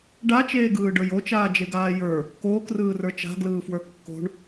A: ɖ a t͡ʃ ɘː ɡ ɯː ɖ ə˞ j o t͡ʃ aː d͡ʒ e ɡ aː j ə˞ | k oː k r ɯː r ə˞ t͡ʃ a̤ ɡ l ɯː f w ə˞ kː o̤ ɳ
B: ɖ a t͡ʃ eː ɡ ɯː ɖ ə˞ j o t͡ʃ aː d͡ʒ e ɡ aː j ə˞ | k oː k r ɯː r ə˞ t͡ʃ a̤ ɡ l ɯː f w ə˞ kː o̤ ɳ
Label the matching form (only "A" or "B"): B